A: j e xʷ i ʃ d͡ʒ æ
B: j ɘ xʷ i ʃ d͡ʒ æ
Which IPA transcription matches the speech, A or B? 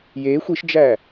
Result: A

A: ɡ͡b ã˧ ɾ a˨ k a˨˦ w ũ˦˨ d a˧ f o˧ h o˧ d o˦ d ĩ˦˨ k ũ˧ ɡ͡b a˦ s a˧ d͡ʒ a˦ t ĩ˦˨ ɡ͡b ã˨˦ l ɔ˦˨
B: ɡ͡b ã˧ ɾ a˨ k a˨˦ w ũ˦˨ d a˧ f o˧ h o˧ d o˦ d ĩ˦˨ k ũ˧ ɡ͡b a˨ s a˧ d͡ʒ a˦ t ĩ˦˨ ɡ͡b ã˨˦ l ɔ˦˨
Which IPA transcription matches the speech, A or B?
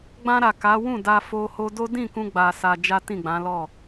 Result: B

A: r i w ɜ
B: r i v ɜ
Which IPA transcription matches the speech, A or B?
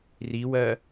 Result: A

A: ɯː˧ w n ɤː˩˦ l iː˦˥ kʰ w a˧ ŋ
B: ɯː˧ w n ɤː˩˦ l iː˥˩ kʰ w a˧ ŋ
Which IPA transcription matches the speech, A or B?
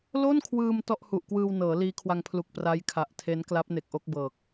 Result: A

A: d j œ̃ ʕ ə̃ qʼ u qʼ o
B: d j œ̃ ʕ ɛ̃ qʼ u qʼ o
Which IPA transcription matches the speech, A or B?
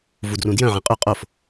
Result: B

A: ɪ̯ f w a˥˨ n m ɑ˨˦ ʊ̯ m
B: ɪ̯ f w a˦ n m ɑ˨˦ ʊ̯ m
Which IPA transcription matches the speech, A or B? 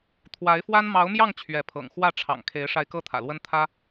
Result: B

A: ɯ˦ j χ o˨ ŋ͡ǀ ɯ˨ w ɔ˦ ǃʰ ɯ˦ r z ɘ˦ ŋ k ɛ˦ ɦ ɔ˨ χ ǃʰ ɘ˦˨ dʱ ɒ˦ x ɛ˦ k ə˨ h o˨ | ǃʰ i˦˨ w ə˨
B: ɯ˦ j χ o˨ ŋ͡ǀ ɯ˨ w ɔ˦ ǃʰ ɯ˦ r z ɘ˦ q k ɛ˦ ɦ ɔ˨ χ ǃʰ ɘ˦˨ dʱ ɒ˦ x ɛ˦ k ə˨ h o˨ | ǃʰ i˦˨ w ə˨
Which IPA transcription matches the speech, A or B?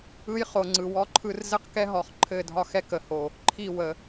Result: B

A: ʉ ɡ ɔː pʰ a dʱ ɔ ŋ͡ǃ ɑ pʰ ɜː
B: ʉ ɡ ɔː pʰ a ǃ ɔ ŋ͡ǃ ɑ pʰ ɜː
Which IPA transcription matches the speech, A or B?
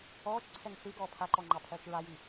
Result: B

